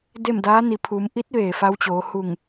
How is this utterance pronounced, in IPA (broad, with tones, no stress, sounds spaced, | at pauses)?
d e˥˨ m d aː˧˥ n i˩˧ pʰ u˩˧ m ʔ i˧˥ t̚ ʋ eː˩ f a˧ w t͡ɕ oː˩˧ h u˧˩ ŋ